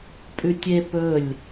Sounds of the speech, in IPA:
pʼ ʉ tʲ e p ɵ lʲ

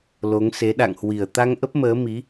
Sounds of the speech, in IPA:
l o˨˦ ŋ s e˨˦ ɗ a̰˧˨ ŋ h w i˨˩ ə̯ t̪ a˧ ŋ ʔ ə˦˥ p̚ m əː˨˦ m i˨˦

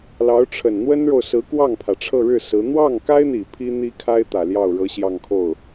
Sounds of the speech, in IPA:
l ɑ˧˥ ʊ̯ ʈ͡ʂʰ ə˨˩ n n̪ w ə˥ n ɻ o˨ ʊ̯ s ɹ̩˧˥ k w ɑ˥˩ ŋ pʰ ä˩ ʈ͡ʂʰ ɤ˥˧ ɻ ɻ̩˥˩ s ɹ̩˧˥ n̪ w ɑ˥˩ ŋ k a˥ ɪ̯ n̪ i˨˩ pʰ i˥ n̪ i˥ kʰ a˥ ɪ̯ t̪ ä˨˩ l j ɑ˥˩ ʊ̯ ɻ ɤ˧˥ ɕ j ɑ˥˧ ŋ kʰ o˥˩ ʊ̯

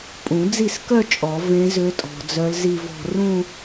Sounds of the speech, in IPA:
pʼ ũ˨˩˦ d͡z i˥˩ s k œ˥˧ t͡ʃʼ ɔ˨˩˦ v ẽ˧˥ z ø˧˥ tʼ ɔ̤˨ d͡z œ˧˥ l z i˥˧ v ɔ̤˥˧ r ũ˥˧

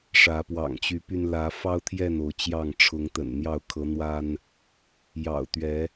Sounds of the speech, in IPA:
ʂ ä˨˦ p w ɑ̰˨˩ ŋ t͡ɕ y˨˦ p y˧ n l ä˨˦ f ɑ˦ ʊ̯ t̪ʰ j ɛ˥˨ n o˨˦ ʊ̯ t͡ɕ j ɑ˥˨ ŋ ʈ͡ʂʰ ʊ˨˦ ŋ t̪ ə̰˨˩ n n̪ j ɑ˥˨ ʊ̯ kʰ ɤ˨˦ n̪ w a˦ n | j ɑ̰˨˩ ʊ̯ t̪ ɥ ɛ˨˦

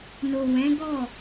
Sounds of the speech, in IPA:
n o˨ w ɛ̃˨˦ ɡ ɔ˦˨

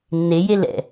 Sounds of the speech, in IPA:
nː e j e l ɛ̰

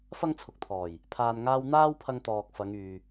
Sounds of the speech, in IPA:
f ɐ˥ ŋ t͡sʰ ʊ˨ k̚ t̪ʰ ɔː˨˩ j | pʰ aː˨ n ŋ aː˧ w n̪ aː˥ w pʰ ɐ˧ ŋ t̪ ɔː˨ k̚ f ɐ˨˧ ŋ yː˨

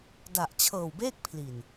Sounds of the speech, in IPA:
d a˨˩ ʔ t͡ɕʰ ɤː˨˩ w b eː˥˩ k̚ pʰ l i˨˩ n

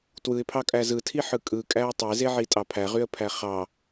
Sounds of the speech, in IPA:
t w ɯ ɪ̯ pʰ ɑ kʼ æ z ɯ tʰ i ħ ɯ kʼ ɯ kʼ æ ʊ̯ tˤ e z e ʕ i tʼ ɑ pʰ æ ʁ y ə̯ pʰ æ χ ɑ

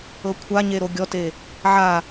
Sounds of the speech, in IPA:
ɤ kʷʰ a ɲ e ɾ o ɡʲ ɔ t e | ʕ a

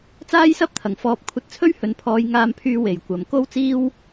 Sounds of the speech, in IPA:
t͡s aː˥ j s ɐ˥ p̚ t̪ʰ ɐ˨˩ ŋ f ɔː˧ p̚ kʷʰ ɐ˧ t̚ t͡sʰ ɵ˥ ɥ h ɵ˨ n pʰ ɔː˨˧ j ŋ aː˧ m pʰ yː˧ w e˨˩ j kʷ ɐ˨ m k o˥ w t͡s iː˥ w

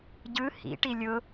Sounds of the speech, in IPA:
ɟ ɯ h ḭ ʈ i lʲ ʊ

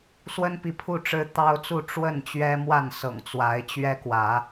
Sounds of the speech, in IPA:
s w ə˦ n p i˨ pʰ u˥˨ ʈ͡ʂ ɻ̩˦ t̪ ɑ˦ ʊ̯ t͡s u˥˨ ʈ͡ʂ w ə˥˨ n t͡ɕ ɥ ɛ˦ m w a˥˨ n s ɤ̰˨˩ ŋ t͡s w a˨˦ ɪ̯ t͡ɕ ɥ ɛ˦ k w ä˨˦

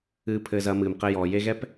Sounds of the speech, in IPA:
ɨː˧ pʰ ɘː˧ z ɐ˨˦ m ɨː˨ m q ɘ˧ j ɔː˨ j e˧ ɣ ɛ˦ p

